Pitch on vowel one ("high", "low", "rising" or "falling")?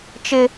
high